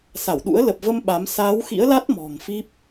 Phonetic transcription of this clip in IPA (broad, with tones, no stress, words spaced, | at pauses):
sa˧˩wɗṵ˧˥ə̯ lə˨˩p̚və˧m ɓa˨˦m saː˨˦wxḭ˧˥ə̯la˦˥t̚ mɔ̤˨˩ŋfi˦˥p̚